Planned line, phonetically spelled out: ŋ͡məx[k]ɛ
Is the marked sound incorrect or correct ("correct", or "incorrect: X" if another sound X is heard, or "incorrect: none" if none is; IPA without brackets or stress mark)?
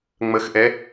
incorrect: ʔ